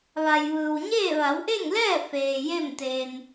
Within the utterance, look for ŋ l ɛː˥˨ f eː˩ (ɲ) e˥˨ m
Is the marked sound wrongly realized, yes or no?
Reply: yes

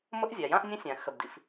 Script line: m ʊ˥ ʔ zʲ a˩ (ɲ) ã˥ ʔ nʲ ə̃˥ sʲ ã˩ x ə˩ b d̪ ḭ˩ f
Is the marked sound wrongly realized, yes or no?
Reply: yes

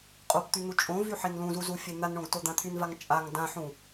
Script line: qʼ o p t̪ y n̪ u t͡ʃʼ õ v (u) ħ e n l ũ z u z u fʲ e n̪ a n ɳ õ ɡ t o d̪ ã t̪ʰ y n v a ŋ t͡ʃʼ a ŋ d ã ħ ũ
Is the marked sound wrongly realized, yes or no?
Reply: yes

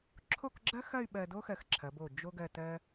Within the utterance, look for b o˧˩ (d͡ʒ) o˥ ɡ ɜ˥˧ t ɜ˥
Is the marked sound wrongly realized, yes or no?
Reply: no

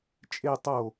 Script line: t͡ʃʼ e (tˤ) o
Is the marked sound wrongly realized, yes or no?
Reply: no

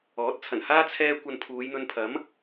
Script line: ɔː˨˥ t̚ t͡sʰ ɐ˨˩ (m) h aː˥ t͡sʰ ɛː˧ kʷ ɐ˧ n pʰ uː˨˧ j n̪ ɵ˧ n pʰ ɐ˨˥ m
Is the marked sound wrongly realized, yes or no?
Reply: yes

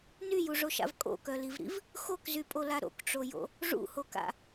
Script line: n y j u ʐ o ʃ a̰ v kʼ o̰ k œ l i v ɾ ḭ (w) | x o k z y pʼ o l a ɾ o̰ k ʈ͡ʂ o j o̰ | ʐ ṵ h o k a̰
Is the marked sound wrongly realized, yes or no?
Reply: yes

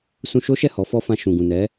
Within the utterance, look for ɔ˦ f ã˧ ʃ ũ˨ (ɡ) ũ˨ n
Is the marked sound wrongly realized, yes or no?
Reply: no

